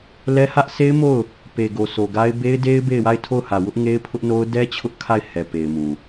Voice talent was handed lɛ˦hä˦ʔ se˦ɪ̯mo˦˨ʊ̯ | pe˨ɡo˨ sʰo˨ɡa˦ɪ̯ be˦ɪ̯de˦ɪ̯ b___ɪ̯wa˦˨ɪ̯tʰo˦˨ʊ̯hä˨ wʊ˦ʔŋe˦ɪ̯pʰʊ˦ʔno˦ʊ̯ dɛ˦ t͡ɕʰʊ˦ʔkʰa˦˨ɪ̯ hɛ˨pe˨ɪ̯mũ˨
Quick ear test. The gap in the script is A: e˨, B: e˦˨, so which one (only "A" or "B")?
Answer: B